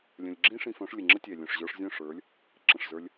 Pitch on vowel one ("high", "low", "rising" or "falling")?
low